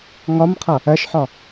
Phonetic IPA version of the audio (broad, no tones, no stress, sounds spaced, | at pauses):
ŋ ɒ m qʰ ʌ | ɜ ʃ ħ ɒ